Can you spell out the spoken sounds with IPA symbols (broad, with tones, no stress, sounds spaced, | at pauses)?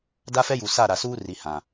d a˦ f ɛ˦ j u˨ s a˦˨ ɾ a˨ s uː˦ r i˨ h ã˨